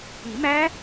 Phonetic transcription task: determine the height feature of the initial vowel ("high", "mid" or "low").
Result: high